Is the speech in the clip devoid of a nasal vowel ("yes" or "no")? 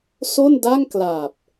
yes